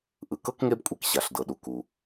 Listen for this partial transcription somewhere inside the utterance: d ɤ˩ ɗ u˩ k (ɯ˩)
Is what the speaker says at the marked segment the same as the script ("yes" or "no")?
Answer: no